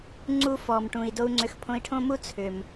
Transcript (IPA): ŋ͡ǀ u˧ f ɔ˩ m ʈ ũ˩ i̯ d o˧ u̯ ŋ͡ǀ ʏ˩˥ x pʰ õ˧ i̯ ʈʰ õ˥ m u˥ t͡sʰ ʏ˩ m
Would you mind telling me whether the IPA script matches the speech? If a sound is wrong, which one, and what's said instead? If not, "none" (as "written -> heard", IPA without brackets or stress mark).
none